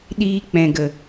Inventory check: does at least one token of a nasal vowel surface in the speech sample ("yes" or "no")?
yes